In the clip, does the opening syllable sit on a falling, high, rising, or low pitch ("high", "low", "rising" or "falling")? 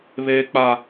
high